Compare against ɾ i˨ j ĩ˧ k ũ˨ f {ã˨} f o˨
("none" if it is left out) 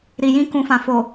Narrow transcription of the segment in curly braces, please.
ã˨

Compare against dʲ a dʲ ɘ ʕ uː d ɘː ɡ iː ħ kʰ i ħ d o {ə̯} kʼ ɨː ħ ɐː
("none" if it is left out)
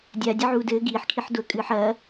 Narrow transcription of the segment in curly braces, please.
ə̯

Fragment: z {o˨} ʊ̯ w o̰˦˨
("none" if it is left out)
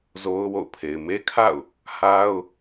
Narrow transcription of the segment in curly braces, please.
o˦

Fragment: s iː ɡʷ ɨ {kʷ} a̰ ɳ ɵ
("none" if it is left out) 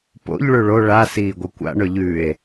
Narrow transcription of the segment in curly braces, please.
kʷ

